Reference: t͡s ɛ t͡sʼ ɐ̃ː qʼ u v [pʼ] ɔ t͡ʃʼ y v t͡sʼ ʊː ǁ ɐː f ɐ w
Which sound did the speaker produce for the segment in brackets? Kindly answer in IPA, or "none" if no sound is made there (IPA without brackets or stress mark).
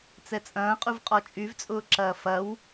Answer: qʼ